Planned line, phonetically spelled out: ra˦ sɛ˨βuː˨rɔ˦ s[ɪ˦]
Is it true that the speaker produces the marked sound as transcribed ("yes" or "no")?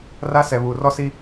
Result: no